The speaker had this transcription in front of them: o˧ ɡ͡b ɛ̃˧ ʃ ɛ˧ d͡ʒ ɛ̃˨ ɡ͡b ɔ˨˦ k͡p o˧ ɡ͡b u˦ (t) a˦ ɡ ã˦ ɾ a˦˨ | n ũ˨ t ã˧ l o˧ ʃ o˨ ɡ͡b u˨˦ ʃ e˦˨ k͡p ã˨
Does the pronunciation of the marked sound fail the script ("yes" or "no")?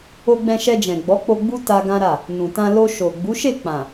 no